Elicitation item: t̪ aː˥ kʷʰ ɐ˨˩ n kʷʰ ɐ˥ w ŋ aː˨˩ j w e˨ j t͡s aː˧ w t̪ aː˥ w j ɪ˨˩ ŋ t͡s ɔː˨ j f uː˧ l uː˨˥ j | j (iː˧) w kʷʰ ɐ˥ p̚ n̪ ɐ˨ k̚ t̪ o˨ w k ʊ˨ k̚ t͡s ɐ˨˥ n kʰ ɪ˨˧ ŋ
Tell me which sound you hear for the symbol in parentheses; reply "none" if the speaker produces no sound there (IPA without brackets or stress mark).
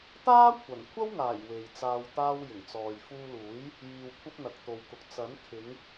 iː˧